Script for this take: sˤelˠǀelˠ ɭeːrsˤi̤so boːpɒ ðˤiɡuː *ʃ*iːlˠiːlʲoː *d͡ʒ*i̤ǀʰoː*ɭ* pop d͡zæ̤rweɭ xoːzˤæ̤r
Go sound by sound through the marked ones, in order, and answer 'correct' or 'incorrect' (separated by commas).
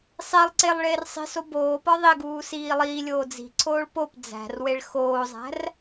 incorrect, incorrect, correct